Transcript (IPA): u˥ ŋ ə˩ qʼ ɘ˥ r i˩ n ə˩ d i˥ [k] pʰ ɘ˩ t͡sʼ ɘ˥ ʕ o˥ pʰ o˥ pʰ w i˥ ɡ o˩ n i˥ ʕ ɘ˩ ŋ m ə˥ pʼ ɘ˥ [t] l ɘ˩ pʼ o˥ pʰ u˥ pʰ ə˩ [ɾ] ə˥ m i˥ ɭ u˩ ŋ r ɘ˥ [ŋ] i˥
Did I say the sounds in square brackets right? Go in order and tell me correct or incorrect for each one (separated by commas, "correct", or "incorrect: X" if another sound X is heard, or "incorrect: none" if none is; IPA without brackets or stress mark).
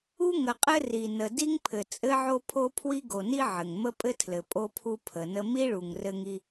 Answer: incorrect: ŋ, incorrect: tʰ, incorrect: n, correct